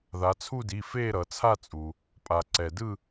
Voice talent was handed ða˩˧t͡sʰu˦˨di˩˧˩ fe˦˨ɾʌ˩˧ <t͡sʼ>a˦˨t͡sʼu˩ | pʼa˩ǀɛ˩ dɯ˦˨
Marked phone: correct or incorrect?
incorrect: t͡sʰ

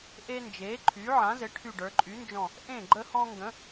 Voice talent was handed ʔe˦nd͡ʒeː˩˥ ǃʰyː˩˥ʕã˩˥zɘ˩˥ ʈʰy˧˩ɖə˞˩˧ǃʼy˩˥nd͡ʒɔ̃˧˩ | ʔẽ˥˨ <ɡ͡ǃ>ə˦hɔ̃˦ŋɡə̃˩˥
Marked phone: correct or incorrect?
correct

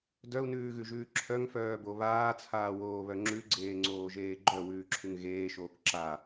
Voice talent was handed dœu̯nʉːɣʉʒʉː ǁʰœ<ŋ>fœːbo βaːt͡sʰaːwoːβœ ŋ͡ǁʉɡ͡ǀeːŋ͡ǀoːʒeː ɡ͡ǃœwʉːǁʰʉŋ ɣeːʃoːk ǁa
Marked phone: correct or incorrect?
correct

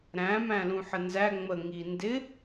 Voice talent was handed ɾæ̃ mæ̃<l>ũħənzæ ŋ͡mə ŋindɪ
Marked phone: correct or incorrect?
correct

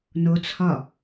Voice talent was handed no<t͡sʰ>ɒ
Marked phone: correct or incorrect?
correct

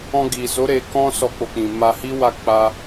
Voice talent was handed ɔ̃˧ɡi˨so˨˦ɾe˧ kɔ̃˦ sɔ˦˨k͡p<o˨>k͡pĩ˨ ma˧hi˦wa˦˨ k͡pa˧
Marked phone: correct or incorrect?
incorrect: o˧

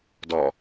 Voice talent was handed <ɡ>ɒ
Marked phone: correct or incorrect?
incorrect: d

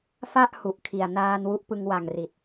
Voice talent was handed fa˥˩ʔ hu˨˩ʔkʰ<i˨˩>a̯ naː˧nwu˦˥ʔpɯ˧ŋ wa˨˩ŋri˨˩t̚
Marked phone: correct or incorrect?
correct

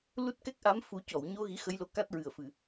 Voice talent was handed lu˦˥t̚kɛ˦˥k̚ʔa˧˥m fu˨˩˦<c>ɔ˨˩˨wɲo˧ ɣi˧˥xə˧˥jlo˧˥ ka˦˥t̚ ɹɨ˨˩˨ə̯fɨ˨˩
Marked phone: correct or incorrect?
correct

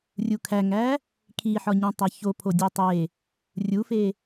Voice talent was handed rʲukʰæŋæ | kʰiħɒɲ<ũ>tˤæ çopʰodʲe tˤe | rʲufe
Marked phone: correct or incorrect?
correct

